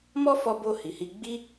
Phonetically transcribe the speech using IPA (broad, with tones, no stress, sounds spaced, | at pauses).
m ɔ˦ f ɔ˧ b o˧ h i˨ h i˧ ɡ͡b i˦